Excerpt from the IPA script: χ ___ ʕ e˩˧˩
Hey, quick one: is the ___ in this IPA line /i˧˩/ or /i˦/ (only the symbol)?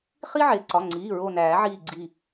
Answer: i˦